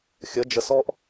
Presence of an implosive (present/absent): absent